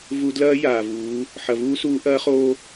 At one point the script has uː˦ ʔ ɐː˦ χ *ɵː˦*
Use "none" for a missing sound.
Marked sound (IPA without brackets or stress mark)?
oː˦